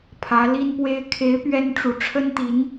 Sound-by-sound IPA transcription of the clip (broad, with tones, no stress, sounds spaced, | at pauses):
pʰ ä˧˥ l i˥ n p w e˥ ɪ̯ kʰ e˧˥ ɪ̯ p ɥ ɛ˥ n ʈ͡ʂ u˧˥ ʈ͡ʂʰ ə˥ n t̪ i˧˥ n